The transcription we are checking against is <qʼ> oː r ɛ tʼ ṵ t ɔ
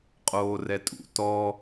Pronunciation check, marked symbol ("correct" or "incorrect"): correct